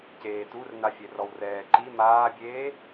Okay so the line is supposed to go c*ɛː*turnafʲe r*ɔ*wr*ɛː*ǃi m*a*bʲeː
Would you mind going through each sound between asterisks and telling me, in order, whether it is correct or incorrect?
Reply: incorrect: eː, correct, correct, incorrect: aː

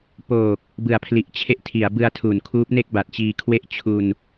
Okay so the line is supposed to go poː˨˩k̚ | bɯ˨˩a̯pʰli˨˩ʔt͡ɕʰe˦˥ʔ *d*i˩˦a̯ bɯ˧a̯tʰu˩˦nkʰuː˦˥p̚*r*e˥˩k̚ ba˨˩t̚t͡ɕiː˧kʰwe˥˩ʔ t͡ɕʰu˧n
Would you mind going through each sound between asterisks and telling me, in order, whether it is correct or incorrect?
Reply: incorrect: tʰ, incorrect: n

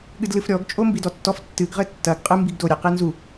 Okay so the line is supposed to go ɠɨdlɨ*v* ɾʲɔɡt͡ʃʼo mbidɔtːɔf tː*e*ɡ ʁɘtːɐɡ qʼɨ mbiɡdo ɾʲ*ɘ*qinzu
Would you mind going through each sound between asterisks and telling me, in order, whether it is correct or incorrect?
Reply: incorrect: f, incorrect: ɨ, incorrect: e

